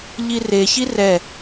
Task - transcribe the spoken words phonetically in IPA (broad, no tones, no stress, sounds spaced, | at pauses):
ʎ i r e ç i r ɛ